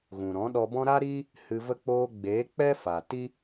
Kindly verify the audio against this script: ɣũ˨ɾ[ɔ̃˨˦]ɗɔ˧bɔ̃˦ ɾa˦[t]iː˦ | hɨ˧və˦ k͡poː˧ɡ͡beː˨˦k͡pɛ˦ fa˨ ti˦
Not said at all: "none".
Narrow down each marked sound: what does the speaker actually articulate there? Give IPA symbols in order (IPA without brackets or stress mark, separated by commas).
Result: ɔ̃˨˦, ɾ